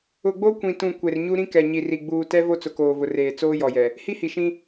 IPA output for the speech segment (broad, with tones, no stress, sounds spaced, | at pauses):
ʊ˨ ɡ͡b o˦ kʷ ĩ˨ t ũ˨ kʷ e˨ r ɲ u˦ ɾ ĩ˦ k ɛ˨ ɲ i˨ r i˨ ɡ͡b uː˨ t ɛ˦ v o˦ t͡s ʊ˨ k oː˨ v ʊ˨ r eː˨ t͡s oː˦ j ɔ˨ j ɛ˨ | h i˦ h i˨ ʃ ĩ˦